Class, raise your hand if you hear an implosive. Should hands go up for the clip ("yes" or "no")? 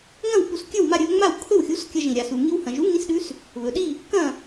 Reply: yes